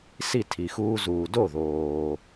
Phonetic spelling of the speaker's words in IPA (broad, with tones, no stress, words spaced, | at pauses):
si˥˩ tʰi˩xuː˧zuː˩do˥˩ ðoː˩